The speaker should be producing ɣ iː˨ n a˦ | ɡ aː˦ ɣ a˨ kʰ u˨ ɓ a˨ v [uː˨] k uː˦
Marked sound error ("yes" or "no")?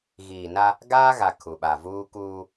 yes